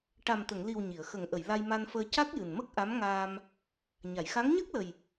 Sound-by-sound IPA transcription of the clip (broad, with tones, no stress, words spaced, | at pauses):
ʈa˨˩mt̪ə˨˩˨ŋli˨˩w ɲi˨˩˨ə̯xə˨˩˦ŋ ʔə˨˩˨j la˧jma˧nfəː˧ ca˦˥k̚jɨ˨˩nmə˦˥k̚ ʔa˧˥mŋaː˧m | ɲa˨˩˨jxa˧˥ŋ ɲəː˦˥k̚lə˨˩j